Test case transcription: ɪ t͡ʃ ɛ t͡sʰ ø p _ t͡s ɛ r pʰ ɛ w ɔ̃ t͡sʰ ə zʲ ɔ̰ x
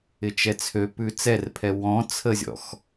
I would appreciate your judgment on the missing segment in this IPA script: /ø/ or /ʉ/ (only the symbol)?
ʉ